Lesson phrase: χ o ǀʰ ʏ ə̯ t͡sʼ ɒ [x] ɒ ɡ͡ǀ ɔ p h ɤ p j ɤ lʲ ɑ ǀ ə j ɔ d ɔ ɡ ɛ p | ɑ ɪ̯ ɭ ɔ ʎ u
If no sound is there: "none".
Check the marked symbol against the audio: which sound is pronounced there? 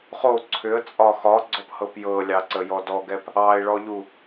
x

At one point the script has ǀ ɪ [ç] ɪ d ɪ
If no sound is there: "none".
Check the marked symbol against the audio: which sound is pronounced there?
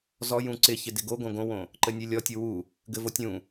ç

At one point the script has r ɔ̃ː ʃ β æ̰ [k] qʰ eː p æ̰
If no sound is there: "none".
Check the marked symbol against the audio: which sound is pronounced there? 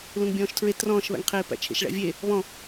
ŋ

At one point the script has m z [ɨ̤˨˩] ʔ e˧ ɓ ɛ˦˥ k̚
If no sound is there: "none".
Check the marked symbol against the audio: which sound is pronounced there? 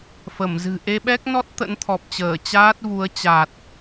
ɨ̤˨˩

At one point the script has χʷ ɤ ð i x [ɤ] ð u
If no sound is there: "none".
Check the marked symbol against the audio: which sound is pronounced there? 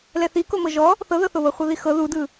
ɤ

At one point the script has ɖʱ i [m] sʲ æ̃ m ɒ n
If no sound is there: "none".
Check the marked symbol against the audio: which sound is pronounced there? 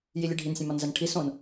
n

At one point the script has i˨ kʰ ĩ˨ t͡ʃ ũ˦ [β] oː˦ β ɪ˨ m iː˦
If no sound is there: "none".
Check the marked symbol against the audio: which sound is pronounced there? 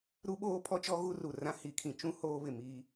h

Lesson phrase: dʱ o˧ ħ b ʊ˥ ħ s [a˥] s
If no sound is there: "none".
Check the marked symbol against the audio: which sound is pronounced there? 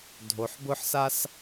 a˥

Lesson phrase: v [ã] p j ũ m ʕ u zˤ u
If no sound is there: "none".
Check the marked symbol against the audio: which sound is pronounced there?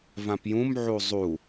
ã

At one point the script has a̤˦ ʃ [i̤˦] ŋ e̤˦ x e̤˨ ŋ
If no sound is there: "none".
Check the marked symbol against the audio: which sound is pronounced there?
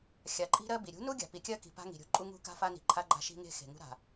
i̤˦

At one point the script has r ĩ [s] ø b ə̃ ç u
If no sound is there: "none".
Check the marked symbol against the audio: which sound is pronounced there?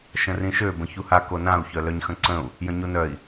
ʃ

